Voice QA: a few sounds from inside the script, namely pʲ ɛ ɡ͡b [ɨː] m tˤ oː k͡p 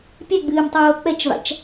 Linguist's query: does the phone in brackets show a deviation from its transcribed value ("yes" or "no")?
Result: no